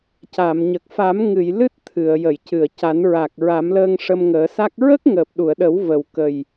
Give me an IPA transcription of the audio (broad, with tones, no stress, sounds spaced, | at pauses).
c a˨˩˨ m ɲ ə˨˩ k̚ f a˨˩˦ m ŋ ɨ˨˩˨ j l ɨ˦˥ t̚ t̪ʰ ɨ˨˩˨ ə̯ j ə˨˩˨ j c ɨ˨˩˨ ə̯ c a˨˩˦ n ɹ a˨˩ k̚ ɹ a˨˩˦ m l əː˧ ŋ ʂ ə˧ m ŋ əː˨˩˦ s a˦˥ k̚ ɹ ə˦˥ k̚ ŋ əː˨˩ p̚ ɗ u˨˩˨ ə̯ ɗ ə˨˩˦ w v ə˨˩ w k ə˨˩ j